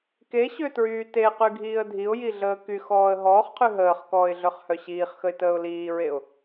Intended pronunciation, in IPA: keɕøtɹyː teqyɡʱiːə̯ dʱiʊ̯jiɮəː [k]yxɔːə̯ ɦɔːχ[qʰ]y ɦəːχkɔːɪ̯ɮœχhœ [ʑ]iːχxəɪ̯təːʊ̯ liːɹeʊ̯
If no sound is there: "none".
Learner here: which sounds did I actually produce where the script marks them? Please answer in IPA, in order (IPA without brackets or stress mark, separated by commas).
k, qʰ, ɕ